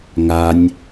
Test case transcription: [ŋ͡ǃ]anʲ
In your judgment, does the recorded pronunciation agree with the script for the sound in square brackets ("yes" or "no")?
no